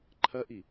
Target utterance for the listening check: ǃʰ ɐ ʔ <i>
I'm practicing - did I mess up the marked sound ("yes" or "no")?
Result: no